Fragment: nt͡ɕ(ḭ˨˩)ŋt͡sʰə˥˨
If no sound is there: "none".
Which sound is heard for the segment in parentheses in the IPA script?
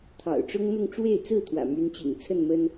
ḭ˨˩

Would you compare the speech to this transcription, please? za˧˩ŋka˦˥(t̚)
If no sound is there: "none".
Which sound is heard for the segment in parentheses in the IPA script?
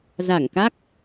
k̚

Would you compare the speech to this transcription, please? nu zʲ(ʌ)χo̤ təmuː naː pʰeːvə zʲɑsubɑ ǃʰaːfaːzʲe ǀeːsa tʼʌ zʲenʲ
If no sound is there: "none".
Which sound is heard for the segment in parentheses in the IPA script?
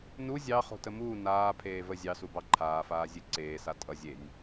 ɑ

